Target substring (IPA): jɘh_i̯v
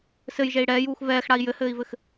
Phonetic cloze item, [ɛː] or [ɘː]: ɘː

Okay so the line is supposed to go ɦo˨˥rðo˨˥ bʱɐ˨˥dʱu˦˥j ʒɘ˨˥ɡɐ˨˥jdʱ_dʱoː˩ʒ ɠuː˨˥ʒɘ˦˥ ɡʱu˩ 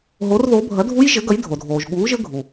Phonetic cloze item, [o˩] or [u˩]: o˩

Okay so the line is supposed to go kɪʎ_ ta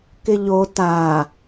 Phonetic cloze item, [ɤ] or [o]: o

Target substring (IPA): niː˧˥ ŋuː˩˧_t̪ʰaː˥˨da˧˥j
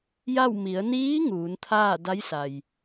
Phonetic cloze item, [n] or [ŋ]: n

